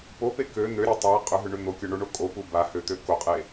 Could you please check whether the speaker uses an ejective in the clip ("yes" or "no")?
yes